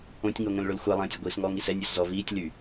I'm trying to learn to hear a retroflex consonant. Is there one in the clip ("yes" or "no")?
yes